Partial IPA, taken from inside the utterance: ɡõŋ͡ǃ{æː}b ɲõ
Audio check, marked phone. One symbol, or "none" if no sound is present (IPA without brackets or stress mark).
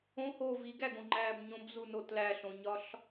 æː